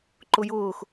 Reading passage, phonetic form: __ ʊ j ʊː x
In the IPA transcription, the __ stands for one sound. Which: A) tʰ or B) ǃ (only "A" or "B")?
B